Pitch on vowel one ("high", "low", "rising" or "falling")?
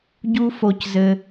high